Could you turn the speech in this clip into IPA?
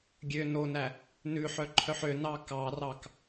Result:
ɡʲø nonæ | nʉħœǃʰœħ ønɑ kɑrɑk

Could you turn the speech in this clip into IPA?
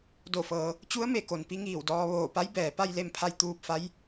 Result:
do˧˩fɤː˩˧ | t͡ɕu˧˥ə̯me˧˩ko˩n pi˧˥ŋiː˧˩wdɔː˧ ʋoː˧˩pa˧˥j bɛː˩pa˥˨jle˥˨mpʰa˧j t̪uː˧p̚fa˧˥j

